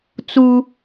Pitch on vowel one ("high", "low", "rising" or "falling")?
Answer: high